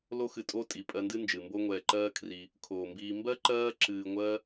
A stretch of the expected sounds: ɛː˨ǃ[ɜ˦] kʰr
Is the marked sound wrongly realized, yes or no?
yes